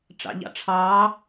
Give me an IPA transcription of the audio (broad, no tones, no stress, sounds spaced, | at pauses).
ʈ͡ʂ ɑ̰ ʎ ɑ̰ ʈ͡ʂʰ ɑː